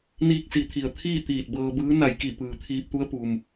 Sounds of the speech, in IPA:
n iː˧ k̚ s i˩˧ t̪ʰ i˩ ə̯ t̪ʰ iː˥˨ t̪ iː˧˩ t̚ b ɤː˧ b ɯː˧˥ n a˧˩ j k i˧˩ p ɯː˩ t̪ʰ iː˧ p̚ t̪ u˧˥ ə̯ p u˩ m

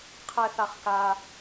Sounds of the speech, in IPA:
qʰ ɛ θ a χ k a

